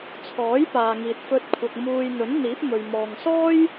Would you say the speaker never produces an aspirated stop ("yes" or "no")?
no